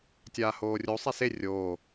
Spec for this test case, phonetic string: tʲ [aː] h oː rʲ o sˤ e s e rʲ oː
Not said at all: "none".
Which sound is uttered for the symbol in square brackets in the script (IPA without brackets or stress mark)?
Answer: aː